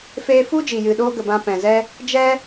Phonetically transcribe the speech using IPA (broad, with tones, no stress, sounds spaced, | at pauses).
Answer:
f eː˧ f u˦ d͡ʒ iː˨ j ɨ˨ ɗ oː˦ ɡ ə˨ b ã˧ p ɛ̃˨ z ɛ˦ | d͡ʒ ɛ˦